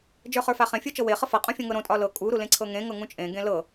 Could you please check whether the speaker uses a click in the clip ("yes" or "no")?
yes